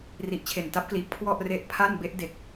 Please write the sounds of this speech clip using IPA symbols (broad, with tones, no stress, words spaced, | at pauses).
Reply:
ri˨˩ʔt͡ɕʰe˨˩n ta˦˥p̚kliː˨˩p̚ kʰwɔ˥˩ʔre˦˥ʔpʰa˥˩n be˦˥ʔde˨˩k̚